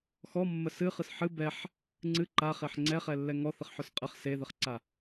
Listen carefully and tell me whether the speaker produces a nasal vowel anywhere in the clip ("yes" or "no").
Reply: no